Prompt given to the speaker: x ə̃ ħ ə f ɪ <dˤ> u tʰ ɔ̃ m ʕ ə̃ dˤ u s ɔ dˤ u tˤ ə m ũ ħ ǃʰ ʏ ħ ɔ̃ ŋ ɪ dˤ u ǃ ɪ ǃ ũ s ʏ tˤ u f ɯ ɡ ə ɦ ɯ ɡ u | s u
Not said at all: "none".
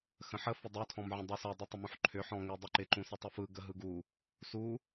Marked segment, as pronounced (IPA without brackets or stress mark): dˤ